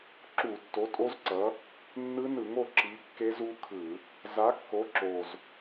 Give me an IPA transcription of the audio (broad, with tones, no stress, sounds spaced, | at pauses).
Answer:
ǁ u˧˩˧ tː o˨˥ tʼ o˦˥ z ǀ ʌ˨˥ | nː ɯ˦˥ n ɯ˧˩˧ ŋ o˥˨ ǁ i˨˥ kː e˦˥ z u˦˥ kʰ ɯ˧˩˧ | z a˨˥ kː o˨˥ ǁ o˨˩ z